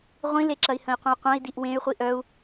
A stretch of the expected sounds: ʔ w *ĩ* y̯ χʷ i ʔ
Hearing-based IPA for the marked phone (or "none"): ẽ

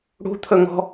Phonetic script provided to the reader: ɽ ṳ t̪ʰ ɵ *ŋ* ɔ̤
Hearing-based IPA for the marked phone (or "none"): ŋ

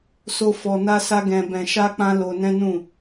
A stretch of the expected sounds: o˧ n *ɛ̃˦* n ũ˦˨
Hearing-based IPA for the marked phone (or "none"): ɛ̃˦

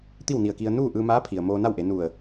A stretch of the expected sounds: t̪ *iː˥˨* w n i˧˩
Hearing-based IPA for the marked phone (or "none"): i˥˨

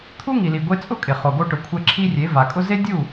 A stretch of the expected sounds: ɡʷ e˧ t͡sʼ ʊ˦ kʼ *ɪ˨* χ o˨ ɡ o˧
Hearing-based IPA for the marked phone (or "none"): ɪ˨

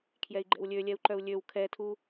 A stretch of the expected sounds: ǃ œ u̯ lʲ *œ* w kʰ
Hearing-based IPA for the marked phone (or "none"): ø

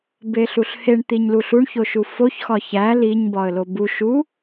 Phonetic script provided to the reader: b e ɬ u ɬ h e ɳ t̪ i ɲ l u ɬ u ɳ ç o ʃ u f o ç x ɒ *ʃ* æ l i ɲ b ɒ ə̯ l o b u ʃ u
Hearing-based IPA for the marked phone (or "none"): ç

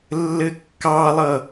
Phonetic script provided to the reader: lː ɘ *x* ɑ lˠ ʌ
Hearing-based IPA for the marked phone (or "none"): kː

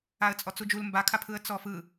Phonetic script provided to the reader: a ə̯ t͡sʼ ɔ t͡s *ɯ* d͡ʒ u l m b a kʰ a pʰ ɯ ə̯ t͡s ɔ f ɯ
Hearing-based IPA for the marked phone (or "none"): u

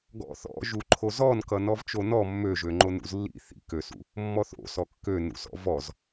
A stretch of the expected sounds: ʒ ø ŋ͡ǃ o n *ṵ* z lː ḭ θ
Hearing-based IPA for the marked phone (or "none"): ṵ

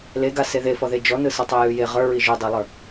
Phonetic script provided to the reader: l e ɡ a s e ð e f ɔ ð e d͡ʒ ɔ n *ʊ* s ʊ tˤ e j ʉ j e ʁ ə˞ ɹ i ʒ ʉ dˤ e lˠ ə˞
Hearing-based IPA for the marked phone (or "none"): ɯ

